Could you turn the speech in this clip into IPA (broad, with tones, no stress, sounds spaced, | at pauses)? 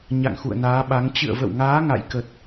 ɲ a̰˧˨ ŋ x ṵ˧˨ ə̯ n aː˨˦ ɓ a˨˦ ŋ t͡ɕ ɨ̰˧˨ ə̯ v ə̰˧˨ w ŋ aː˨˦ ŋ a̰˧˨ j k ə˨˩ t̚